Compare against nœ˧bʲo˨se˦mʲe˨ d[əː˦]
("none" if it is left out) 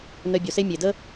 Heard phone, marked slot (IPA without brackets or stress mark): ə˦